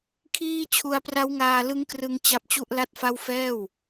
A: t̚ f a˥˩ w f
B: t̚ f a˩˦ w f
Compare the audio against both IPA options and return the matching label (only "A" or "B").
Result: A